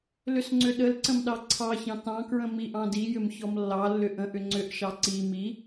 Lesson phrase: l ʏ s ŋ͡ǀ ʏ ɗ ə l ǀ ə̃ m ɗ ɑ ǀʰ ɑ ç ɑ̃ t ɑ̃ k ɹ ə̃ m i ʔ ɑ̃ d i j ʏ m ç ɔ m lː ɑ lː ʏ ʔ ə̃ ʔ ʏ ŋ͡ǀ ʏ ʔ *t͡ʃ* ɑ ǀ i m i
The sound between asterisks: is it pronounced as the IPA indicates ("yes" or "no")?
no